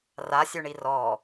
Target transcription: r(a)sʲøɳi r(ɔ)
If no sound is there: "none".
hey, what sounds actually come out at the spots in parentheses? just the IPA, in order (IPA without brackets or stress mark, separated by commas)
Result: a, ɔ